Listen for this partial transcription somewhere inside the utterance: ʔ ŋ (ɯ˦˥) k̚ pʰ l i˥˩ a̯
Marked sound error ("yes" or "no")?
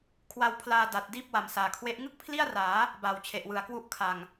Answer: yes